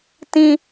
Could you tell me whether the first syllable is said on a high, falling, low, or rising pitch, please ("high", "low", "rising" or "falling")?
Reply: high